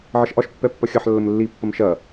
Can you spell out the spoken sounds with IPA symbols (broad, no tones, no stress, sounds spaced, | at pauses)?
ʕ ɐ ʃ ʔ ɒ ʃ pː ɛ pː ɐ xʲ ɐ ħ lː ə m lː i pː ɐ m ʃ ɐ